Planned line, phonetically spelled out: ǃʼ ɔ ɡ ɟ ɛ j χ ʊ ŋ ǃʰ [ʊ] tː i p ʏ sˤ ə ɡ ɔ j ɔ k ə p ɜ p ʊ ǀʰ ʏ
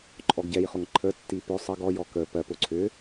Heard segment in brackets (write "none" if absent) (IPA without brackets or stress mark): ə